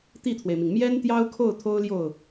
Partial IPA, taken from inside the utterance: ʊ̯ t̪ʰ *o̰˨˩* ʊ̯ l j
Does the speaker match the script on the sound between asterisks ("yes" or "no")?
no